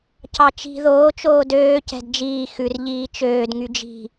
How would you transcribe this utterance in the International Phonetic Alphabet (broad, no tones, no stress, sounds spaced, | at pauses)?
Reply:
c ɑ t͡ʃ i̤ ð oː t͡ʃ oː d øː c ɛ̤ d d͡ʒ iː x ʉ r ʎ iː t͡ʃ øː d ŋ y d͡ʒ i̤